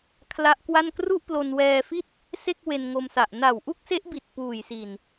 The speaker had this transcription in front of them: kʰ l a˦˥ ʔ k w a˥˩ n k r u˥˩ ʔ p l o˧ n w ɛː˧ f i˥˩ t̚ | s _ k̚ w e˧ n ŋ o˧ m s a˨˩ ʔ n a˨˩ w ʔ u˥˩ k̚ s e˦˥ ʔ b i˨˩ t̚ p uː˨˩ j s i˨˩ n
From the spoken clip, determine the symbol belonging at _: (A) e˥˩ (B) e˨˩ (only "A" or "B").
A